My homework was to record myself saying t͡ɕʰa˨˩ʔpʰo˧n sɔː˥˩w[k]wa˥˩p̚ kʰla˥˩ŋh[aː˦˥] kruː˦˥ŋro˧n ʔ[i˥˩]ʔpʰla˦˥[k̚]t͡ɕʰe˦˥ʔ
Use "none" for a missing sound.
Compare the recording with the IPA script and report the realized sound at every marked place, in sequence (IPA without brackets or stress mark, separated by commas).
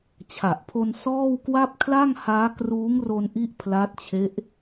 k, aː˦˥, i˥˩, t̚